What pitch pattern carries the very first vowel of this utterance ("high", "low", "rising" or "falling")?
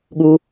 low